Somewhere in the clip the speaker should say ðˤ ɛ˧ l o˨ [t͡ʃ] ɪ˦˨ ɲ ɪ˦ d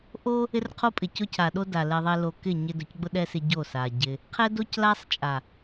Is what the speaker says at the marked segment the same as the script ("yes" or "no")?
no